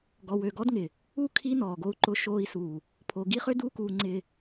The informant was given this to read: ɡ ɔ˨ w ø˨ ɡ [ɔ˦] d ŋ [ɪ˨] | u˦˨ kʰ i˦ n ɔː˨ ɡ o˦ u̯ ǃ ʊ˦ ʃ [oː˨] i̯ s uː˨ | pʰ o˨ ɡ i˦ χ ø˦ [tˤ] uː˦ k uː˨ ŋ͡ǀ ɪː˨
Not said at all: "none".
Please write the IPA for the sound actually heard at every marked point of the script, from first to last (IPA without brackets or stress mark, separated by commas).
ɔ˦, ɪ˨, oː˦, d